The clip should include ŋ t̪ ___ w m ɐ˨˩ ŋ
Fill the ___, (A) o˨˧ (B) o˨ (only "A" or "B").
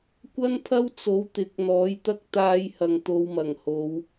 A